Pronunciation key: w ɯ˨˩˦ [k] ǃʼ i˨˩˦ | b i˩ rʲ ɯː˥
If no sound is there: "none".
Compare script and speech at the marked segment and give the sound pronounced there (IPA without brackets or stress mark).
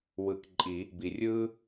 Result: k